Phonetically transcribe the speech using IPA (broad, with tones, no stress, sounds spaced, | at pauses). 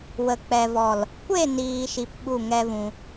w ə˨ k͡p ɛ˨ v ɔ˨ l | kʷ e˦˨ n iː˨ ʃ i˧ p ɓ u˦˨ ŋ ɛ˦ v ũ˧